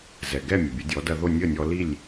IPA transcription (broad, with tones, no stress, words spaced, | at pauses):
zɛ˩ɡɛ˥˩ mʲə˩bʲə˩˥dʲɔ˩˥ dɐ˧ðo˥˩ nʲə˥˩nʲɔ˧li˥˩lʲ